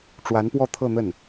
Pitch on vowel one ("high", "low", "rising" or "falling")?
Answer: rising